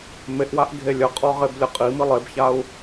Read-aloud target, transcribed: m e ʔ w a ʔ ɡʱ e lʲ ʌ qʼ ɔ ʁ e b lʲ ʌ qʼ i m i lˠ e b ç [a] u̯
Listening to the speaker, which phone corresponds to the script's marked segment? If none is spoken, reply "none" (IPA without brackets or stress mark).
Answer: a